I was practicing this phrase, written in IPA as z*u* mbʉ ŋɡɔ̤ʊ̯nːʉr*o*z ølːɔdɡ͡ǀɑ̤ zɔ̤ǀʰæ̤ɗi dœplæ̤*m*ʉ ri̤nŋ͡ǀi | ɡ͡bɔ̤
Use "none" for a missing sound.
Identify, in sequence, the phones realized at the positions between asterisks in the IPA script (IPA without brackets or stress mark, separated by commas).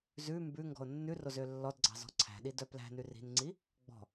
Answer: ʉ, o, n